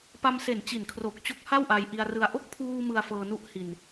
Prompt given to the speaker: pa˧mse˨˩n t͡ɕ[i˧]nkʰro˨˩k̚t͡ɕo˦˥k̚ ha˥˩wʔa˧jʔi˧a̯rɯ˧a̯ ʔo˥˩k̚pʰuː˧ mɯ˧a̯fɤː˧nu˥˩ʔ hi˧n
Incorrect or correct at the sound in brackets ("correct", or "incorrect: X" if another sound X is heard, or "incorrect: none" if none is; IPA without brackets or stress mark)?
incorrect: i˨˩